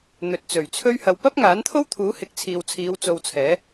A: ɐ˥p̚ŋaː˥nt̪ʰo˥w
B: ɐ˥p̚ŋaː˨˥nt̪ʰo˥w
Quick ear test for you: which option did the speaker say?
B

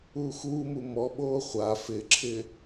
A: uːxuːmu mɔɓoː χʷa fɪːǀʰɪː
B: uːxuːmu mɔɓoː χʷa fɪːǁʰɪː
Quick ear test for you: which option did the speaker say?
B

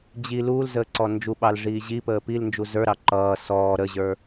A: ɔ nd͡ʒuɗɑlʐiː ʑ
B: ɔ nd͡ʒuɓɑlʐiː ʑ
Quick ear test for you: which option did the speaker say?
B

